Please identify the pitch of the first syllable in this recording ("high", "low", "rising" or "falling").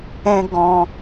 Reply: high